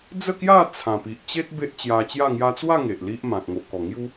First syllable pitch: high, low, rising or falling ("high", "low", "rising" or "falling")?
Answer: falling